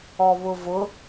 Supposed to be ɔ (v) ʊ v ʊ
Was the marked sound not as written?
yes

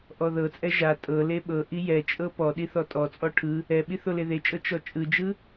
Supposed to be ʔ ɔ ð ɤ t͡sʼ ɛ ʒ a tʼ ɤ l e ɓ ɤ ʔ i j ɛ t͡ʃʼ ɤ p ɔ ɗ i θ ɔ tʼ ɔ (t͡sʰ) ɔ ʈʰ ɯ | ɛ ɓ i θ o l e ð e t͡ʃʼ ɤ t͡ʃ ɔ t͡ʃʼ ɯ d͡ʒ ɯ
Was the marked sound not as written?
yes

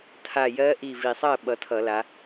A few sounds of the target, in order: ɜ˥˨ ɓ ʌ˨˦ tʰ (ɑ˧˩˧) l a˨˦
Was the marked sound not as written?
yes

